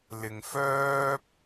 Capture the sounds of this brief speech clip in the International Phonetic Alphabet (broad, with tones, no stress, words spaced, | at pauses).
lɪ˨ŋfœː˥p̚